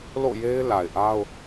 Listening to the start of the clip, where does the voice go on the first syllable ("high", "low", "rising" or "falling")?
falling